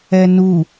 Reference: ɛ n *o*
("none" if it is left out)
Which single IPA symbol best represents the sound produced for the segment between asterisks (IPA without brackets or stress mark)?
u